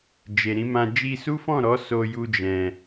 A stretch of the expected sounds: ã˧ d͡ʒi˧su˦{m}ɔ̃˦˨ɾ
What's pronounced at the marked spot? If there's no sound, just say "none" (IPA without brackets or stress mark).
f